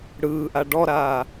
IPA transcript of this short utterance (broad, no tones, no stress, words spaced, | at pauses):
ɽɯːʔa ɖɔɾaː